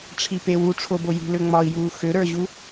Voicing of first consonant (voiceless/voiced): voiceless